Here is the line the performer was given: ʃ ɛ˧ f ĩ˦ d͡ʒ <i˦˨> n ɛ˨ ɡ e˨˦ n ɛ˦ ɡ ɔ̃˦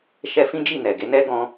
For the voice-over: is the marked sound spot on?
yes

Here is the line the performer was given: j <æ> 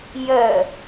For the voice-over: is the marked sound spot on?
no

